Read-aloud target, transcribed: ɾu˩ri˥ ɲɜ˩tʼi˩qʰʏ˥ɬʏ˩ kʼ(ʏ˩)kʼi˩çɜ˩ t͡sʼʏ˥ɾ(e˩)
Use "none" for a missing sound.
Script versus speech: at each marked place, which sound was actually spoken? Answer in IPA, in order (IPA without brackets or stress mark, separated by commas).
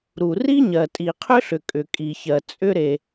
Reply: ʏ˩, e˩